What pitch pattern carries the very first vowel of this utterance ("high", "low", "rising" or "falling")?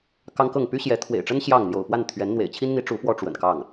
high